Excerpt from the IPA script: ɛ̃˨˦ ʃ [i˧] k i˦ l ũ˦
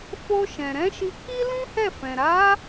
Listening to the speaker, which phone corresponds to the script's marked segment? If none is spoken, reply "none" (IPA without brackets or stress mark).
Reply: i˧